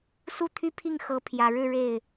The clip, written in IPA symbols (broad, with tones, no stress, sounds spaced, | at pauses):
s u˥˩ t̪ʰ y˥ pʰ i˥˩ ŋ x ɤ˧˥ pʰ j ä˨˩ ɻ ɻ̩˥˧ ɻ e˥˩ ɪ̯